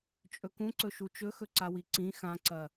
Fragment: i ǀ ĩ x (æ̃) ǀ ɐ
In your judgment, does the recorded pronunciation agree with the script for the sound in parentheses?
no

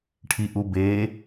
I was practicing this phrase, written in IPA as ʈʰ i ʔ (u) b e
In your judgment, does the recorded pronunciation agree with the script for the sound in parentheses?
yes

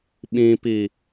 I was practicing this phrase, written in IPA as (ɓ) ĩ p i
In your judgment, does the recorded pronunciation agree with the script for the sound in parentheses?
yes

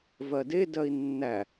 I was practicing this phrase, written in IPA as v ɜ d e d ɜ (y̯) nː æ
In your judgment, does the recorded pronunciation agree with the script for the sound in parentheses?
no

